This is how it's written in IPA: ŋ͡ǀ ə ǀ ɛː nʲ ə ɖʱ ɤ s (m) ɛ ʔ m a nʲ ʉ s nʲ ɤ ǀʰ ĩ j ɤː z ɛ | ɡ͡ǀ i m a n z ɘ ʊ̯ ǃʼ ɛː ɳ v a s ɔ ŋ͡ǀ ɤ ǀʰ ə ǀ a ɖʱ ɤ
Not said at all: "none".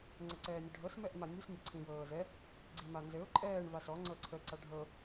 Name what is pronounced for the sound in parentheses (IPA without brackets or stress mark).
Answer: m